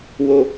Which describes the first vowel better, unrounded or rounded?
rounded